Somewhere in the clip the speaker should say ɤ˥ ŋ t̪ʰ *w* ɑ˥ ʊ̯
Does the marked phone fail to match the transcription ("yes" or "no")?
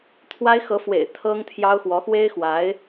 yes